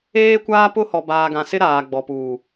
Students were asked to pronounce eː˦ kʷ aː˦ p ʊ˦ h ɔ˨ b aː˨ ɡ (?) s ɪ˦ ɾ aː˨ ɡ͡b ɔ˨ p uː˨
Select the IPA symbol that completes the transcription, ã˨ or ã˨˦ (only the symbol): ã˨